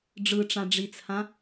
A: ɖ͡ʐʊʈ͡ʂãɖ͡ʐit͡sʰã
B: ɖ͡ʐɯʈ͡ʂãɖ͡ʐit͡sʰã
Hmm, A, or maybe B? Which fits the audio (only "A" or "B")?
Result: B